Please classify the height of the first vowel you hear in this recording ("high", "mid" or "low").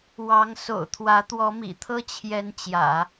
low